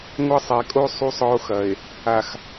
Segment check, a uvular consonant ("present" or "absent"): absent